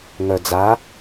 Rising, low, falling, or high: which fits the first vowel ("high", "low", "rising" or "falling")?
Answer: low